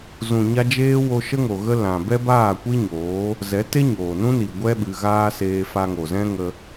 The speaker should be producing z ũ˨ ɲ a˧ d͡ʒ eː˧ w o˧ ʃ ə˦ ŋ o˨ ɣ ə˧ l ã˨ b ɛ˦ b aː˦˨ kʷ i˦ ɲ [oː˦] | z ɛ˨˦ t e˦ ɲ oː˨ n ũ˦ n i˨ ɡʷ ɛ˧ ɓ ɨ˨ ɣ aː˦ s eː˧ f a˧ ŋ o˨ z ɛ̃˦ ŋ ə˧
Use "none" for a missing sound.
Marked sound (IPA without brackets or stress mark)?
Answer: oː˨˦